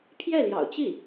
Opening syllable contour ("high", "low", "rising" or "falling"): falling